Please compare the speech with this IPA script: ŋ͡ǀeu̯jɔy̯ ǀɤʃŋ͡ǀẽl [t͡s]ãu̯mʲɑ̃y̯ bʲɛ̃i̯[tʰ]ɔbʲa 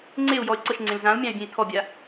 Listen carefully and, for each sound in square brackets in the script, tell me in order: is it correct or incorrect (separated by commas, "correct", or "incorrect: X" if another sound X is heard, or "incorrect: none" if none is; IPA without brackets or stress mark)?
incorrect: z, correct